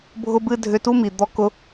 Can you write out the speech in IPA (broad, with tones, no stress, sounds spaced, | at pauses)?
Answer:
bʱ ʊ˧ b ɨ˧ dʱ ʏ˧ t u˦ m i˨ d̪ ɔ˧ k ʊ˧